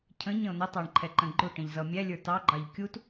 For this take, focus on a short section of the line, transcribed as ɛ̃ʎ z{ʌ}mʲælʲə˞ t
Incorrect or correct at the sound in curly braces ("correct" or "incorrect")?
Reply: correct